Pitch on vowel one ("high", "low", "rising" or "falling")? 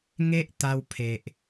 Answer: high